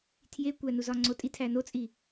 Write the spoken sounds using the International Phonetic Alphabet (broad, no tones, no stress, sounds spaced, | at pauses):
tʰ j e kʷ æ n u z ɒ ŋ͡ǀ o tʼ i tʰ æ n o t͡sʼ i